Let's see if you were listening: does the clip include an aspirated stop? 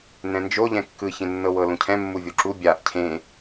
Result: yes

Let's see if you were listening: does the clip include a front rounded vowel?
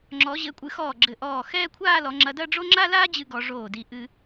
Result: no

